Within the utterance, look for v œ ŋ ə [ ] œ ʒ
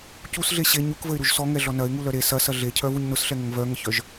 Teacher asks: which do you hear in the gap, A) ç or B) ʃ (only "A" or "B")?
A